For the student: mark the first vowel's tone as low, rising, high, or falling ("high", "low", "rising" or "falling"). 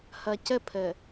low